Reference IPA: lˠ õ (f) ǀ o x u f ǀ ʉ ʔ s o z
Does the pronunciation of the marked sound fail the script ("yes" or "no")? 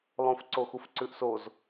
no